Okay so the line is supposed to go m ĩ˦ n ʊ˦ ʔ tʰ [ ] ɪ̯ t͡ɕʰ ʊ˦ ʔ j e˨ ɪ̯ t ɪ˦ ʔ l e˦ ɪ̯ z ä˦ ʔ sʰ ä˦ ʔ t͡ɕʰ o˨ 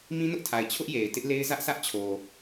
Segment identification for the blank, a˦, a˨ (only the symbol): a˨